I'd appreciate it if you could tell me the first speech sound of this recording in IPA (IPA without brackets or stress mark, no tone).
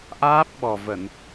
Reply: ʔ